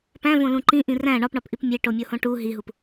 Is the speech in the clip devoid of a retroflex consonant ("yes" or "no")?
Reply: no